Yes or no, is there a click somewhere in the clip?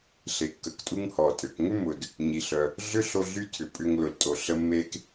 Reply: no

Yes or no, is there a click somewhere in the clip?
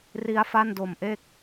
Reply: no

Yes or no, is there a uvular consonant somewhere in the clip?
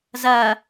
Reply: no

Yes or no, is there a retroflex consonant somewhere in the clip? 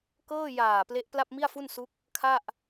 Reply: no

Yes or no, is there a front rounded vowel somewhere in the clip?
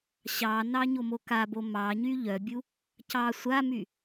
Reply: yes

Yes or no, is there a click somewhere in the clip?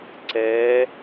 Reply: yes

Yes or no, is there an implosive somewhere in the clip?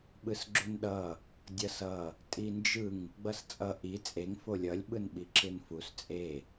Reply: yes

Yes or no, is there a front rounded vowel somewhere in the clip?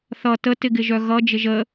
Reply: yes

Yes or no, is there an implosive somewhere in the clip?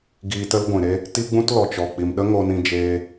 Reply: yes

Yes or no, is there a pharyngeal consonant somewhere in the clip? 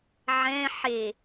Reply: yes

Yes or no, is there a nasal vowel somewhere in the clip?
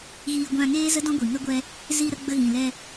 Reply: yes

